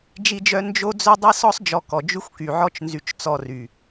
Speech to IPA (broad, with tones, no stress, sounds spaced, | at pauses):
d͡ʒ i˦ d͡ʒ œ˦ n d͡ʒ o˦ d͡z œ˦ dˤ e˦ s ɔ˦ sˤ d͡ʒ ɔ˧ k ɔ˨ d͡ʒ y˦ xʷ k y˨ ʕ ɔ˦ t͡ʃ n z y˧ t͡ʃ t͡s ɔ˧ r y˨